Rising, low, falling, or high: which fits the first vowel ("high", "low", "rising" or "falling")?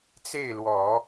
falling